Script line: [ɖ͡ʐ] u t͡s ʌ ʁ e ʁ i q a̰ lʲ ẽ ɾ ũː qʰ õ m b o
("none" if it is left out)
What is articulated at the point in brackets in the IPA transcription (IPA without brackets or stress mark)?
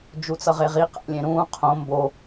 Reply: d͡ʒ